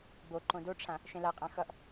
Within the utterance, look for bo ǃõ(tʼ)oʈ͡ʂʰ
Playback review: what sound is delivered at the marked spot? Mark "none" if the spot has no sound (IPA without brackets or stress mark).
d